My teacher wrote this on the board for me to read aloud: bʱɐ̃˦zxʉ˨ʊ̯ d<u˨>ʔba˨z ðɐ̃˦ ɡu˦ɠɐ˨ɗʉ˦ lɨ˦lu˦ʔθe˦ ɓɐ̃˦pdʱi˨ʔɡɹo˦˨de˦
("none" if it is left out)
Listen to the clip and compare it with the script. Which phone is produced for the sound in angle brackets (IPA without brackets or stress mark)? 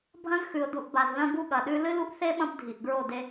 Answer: u˨